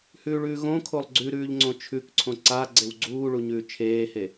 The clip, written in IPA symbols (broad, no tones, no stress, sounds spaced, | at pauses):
h ʉː ɭ ʉ ɣ õ kʰ o lˠ ɡ͡ǀ ʉ ɾ ʉː ʎ ŋ͡ǀ õ t͡ʃʰ ʉ k ǀʰ õ ǀ a ɡ͡ǀ e w ɡ͡ǀ uː ɭ u ɲ ʉː t͡ʃʰ eː h e